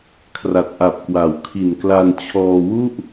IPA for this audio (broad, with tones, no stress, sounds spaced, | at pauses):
kʰ r a˨˩ t̚ ʔ a˨˩ p̚ k w a˩˦ w kʰ i˨˩ n k l a˧ n t͡ɕʰ ɔː˧ w u˥˩ ʔ